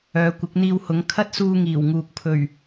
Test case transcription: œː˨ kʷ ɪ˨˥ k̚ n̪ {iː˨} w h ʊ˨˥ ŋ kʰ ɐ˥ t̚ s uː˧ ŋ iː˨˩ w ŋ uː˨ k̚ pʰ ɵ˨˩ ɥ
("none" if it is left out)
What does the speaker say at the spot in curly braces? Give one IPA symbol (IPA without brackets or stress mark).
iː˧